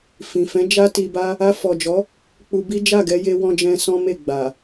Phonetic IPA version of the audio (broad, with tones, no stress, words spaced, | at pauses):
fĩ˨fɛ̃˨˦ d͡ʒa˦ti˧ba˦ | a˧fɔ˨d͡ʒɔ˨˦ | k͡pu˧bi˦ d͡ʒa˦˨ɡɛ˧ je˧ wɔ̃˧d͡ʒɛ̃˧ sɔ̃˦me˦˨ɡ͡ba˨